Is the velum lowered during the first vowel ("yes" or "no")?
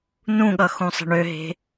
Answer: yes